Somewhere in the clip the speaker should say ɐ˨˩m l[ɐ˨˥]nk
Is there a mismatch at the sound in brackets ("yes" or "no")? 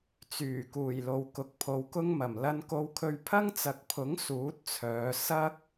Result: yes